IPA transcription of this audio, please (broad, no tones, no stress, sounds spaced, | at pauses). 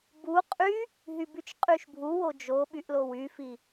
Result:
b u qʼ y | ɦ y b y t͡ʃ qʼ y ʃ bʱ u w o d͡ʒ o ɓ y ʔ l o w y f i